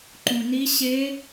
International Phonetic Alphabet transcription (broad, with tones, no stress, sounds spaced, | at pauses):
ǃ ũ˧ n i˦˥ ɕ e˦˥